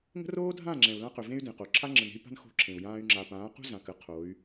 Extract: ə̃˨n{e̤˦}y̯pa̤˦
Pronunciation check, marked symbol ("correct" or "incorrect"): correct